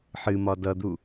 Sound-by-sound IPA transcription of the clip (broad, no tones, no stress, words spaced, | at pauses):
ħɨmɒ dʌd̪u